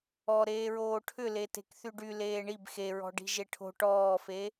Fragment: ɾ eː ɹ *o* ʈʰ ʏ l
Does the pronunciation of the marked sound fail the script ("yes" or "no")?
yes